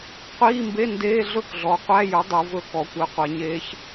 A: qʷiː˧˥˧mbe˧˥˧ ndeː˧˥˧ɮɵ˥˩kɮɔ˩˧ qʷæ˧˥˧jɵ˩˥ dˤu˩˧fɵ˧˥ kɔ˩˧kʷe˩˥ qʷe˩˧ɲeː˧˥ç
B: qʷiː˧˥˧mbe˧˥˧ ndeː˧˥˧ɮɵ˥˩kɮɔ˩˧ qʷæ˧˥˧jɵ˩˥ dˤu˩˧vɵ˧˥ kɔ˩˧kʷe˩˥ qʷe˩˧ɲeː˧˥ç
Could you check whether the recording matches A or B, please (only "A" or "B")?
B